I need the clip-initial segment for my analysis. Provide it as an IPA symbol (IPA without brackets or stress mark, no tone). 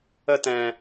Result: ə